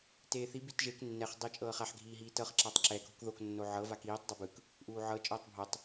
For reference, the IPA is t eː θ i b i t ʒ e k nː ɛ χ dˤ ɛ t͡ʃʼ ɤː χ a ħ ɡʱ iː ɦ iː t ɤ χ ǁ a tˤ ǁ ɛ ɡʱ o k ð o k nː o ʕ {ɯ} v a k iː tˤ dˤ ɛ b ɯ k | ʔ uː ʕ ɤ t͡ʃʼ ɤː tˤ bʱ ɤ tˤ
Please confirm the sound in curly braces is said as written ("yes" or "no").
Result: no